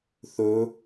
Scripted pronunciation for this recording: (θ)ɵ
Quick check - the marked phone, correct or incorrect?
correct